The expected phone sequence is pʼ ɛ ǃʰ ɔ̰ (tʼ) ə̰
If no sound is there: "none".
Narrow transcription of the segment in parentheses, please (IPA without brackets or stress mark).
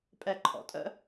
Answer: tʼ